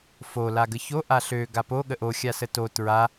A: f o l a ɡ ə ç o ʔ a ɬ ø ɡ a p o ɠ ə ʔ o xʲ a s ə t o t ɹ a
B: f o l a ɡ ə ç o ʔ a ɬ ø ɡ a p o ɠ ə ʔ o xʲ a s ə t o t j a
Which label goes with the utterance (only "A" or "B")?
A